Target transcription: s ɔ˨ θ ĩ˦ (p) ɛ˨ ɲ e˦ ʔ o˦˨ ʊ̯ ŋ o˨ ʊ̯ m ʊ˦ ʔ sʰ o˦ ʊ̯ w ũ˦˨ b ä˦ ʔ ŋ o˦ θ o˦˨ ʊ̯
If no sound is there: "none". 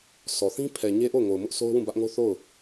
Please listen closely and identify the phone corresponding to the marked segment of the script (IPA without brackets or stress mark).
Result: pʰ